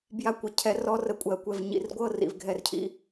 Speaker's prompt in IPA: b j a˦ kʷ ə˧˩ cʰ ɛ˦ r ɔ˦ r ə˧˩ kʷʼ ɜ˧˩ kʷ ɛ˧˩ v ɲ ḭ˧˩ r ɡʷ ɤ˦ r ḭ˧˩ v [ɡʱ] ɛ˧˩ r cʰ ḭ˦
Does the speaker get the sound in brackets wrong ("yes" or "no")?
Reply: no